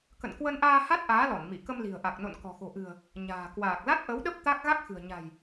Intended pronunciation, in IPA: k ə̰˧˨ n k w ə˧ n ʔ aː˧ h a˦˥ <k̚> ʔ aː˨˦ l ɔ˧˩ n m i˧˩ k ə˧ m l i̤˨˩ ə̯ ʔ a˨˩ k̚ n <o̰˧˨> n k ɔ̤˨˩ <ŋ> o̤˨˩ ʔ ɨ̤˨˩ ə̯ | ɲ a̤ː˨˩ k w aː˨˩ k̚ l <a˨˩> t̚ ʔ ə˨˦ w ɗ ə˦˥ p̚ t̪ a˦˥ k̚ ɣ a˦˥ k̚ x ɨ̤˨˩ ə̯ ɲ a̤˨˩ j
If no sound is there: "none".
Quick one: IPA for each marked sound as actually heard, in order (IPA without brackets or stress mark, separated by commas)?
t̚, o̰˧˨, x, a˦˥